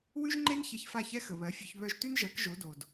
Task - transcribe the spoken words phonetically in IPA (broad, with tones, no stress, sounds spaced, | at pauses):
w ʉ˥ ʒ ŋ͡ǃ e˥ n ç ɛ˧ ç f a˥˩ ç ɛ˥ x ə˩ β ɜ˩˥ fʲ ʉ˧ ç β œ˧ ʒ t ʉ˥ n ʒ ɜ˩˥ k ʒ o˩˥ d o˩ d